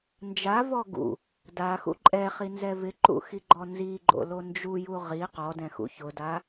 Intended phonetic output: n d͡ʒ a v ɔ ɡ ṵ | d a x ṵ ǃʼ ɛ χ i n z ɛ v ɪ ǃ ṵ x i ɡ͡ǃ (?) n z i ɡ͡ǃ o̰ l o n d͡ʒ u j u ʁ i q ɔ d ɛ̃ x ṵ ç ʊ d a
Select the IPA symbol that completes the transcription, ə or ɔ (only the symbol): ɔ